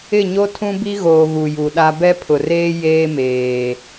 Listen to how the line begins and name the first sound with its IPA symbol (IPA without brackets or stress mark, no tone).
ɪ